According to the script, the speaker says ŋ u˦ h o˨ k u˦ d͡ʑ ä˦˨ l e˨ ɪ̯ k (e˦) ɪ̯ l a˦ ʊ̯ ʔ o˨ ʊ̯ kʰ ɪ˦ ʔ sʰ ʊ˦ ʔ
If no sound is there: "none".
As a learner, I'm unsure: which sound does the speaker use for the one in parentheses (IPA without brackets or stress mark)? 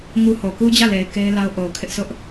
e˦